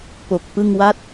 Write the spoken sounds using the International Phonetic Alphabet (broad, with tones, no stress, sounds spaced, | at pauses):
p o˨˩ k̚ p ɯ˥˩ ŋ w a˥˩ t̚